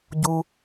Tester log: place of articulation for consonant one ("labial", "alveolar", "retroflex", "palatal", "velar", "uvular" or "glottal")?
palatal